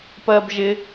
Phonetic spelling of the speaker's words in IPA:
p ɜ b ʒ ɪ

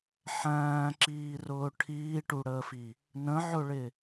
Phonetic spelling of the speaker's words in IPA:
ħ æ̃ː ǁ iː r ʊː ʈʰ iː ʈ u ɽ əː f i | n ə̃ ʕ ʊ ɭ ɪ

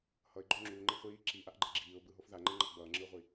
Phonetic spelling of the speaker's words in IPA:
h ʌ ɪ̯ ɡ͡ǃ o ŋ͡ǁ uː ŋ͡ǃ ɛ χʷ iː ǁ iː ʔ a ʔ ɡ͡ǃ e ɡ͡ǁ iː ʊ̯ b ɯ ɦ o f ð a ŋ͡ǃ ɛ ŋ͡ǃ ʌ ʔ b ʌː ŋ͡ǁ ɯ ʊ̯ ʁʷ i

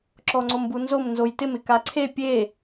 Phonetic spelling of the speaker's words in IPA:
ǁ ɔ ŋ͡ǀ o m b u n z o m n z o j t ɪ m ɪ k a ǀʰ e pʲ e

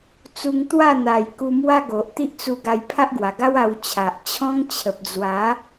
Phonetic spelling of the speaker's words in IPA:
t͡s u˧ ŋ t̪ w a˥˧ n̪ a˨˩ j k u˧ m w a˦ ɡ o˨ ʔ t̪ i˦ ʔ t͡s u˧ ɡ a˧ j pʰ a˦ ʔ ɡ w a˨˩ ɡ a˦ w a˧ w t͡ɕʰ a˨ ʔ t͡ɕʰ ɔ̃˦ ŋ t͡ɕʰ ə˨ p̚ d͡z w a˨˦

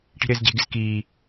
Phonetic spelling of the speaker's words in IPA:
ʈ i̤ ɾ ɪː z ɟ e̤ ɡ ɪ z k iː

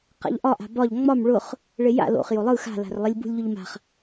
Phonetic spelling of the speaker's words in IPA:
q a̰ ʎ ʔ ɒ ʔ a̤ b ɒ ʎ ŋ͡m ɒ m ɭ ʊ χ | ɭ e j a̰ l o̰ χ j o lˠ ɯ x a̤ l a̤ r lˠ i lʲ b ṳ lʲ ʎ ʊ ʎ m a̤ χ

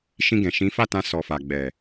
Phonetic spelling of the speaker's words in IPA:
ʃ ĩ˧ ɡ ɛ̃˨ ʃ ĩ˨˦ f a˦˨ t ã˧ s ɔ˨ f a˨ ɡ͡b ɛ˨

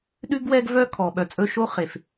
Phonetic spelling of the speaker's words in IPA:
ɗ ʉ˦ ɡ w ɛ˦ ɡ v œ˦ kʰ ɔ˨ ɓ œ˨ t͡sʼ ɵ˦ ʃ o˦ χ e˨ f

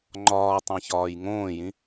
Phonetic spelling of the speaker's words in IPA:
ŋ͡ǃ ɒː tˤ æ̃ ç ɒː j ŋ õː j ĩ

